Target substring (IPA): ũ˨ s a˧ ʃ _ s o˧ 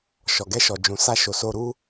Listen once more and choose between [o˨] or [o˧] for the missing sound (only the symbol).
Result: o˨